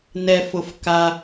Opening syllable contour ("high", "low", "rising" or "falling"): low